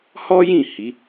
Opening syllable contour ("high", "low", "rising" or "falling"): high